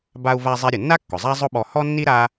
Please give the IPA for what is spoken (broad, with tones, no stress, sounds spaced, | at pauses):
b a˧ u̯ v a˧ zˤ ɛ˧ ɾʲ ʊ˩ nː a˥ kː ʊ˩ zˤ a˥ zˤ ʊ˥ ɓ ɔ˧ h ɔ˥ nː i˥ ɾ a˥